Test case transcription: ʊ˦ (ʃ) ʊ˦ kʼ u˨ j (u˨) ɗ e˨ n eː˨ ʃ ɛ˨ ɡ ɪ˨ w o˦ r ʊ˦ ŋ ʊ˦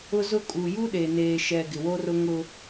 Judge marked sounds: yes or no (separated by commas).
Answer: no, no